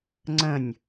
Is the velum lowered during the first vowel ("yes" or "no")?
yes